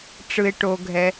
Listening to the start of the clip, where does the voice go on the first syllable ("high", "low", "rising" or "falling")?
low